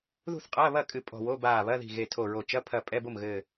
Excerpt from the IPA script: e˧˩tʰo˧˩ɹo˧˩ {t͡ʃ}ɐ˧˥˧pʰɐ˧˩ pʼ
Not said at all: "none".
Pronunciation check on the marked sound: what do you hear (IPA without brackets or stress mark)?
t͡ʃ